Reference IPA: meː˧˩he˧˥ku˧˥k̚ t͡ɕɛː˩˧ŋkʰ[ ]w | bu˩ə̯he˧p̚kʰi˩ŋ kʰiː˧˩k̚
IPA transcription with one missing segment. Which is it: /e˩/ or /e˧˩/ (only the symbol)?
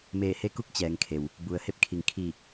e˩